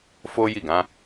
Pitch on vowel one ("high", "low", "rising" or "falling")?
high